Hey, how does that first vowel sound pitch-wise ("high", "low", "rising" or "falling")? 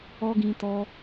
high